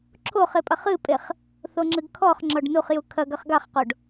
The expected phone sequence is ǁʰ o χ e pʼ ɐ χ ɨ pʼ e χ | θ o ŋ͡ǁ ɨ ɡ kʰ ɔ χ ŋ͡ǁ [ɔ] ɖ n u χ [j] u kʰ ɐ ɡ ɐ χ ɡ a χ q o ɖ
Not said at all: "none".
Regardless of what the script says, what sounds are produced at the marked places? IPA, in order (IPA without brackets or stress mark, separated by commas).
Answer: ɔ, j